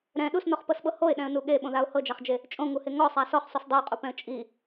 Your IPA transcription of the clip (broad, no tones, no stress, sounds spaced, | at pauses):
ɾ ɛ̃ ɗ u s n ɔ χ p ɤ s ɓ ɤ h o ɪ̯ ɗ ɛ̃ ə̯ n u ɠ e ɓ õ ð a ʊ̯ h ɤ d͡ʒ a χ d͡ʒ e | t͡ʃʼ õ ŋ u h e ŋ ɔ sˤ a s ɔ χ sˤ u s dˤ e ʊ̯ qʼ u p ɛ̃ ə̯ t͡ʃʼ i